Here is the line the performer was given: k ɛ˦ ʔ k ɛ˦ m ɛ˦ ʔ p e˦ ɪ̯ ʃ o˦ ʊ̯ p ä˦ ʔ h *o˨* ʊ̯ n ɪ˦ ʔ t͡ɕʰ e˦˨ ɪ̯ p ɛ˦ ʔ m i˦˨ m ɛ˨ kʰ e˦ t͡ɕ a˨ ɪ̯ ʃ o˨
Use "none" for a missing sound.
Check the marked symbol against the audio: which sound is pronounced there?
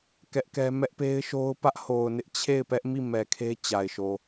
o˨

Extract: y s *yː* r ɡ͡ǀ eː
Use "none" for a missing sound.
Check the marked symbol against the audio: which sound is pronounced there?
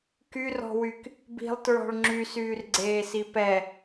yː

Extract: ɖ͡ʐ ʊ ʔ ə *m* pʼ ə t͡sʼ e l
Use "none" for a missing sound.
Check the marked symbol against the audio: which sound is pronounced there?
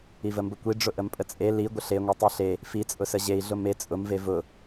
m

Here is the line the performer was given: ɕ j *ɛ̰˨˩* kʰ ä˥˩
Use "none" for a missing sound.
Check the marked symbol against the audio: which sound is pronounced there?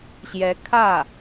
ɛ˧˥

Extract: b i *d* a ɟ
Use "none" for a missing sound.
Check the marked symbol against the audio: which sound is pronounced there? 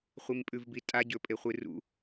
tʼ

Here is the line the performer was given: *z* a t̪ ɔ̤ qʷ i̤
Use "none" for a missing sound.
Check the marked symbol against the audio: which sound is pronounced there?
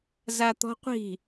z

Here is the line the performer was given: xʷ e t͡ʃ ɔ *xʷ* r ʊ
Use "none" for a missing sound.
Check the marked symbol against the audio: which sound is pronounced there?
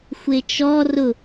none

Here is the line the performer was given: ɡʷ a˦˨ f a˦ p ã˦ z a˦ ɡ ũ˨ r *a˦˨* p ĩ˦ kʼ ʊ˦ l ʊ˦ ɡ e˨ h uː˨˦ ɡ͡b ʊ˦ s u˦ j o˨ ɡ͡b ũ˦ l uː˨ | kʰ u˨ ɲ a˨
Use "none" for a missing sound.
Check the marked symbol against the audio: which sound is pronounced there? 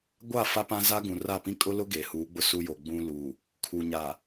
a˦˨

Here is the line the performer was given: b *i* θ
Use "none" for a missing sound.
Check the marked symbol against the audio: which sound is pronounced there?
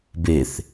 e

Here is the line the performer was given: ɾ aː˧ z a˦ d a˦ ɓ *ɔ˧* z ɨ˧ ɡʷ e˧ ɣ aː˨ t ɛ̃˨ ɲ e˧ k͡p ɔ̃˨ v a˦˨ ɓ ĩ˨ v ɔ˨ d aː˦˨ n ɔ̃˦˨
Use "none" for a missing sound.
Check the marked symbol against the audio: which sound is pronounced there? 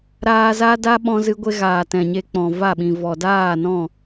ɔ̃˧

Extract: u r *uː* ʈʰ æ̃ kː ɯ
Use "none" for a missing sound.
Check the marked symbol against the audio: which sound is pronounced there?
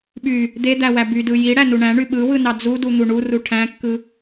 u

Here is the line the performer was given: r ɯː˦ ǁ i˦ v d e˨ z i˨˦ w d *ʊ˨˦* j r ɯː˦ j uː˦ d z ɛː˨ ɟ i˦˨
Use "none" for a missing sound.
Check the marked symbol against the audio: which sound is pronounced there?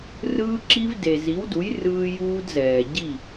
u˨˦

